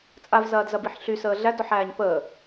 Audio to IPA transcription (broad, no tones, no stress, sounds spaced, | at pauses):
t͡sʼ a v z ɐː d z ɐ b i ħ ɬ y s əː ɮ æ d ɔ ħ æː ɲ p əː